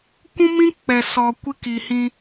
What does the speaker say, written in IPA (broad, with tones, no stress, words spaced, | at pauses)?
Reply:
kʷũ˦mĩ˦ k͡pɛ˨sɔ˨ kʷɪ˦ki˨hĩ˦